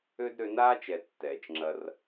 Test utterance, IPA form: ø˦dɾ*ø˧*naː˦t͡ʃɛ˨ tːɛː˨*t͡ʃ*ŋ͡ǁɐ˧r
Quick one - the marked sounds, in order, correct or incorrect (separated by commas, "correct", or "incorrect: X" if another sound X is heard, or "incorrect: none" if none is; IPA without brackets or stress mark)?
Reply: correct, correct